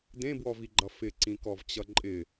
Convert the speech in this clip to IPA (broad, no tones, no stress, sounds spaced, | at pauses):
d ẽ b w ɔ v i ɡ͡ǃ ʌ f ɪ ǀ ĩ k ɔ v t͡ɕ ʌ ǃʼ ɪ